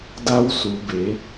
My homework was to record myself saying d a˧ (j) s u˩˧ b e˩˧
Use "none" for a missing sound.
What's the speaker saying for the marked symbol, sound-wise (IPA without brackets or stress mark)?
w